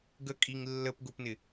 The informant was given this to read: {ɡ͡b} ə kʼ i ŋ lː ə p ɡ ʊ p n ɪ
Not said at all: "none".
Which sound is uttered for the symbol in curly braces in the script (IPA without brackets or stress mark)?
ɡ